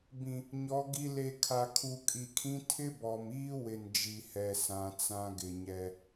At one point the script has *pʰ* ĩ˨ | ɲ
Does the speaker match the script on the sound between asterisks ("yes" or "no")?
no